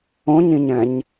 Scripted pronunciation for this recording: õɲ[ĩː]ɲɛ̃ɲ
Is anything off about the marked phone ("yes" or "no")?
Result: yes